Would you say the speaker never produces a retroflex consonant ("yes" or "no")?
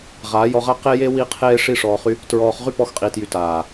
no